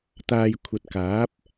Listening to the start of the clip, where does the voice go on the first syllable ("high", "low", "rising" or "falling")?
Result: low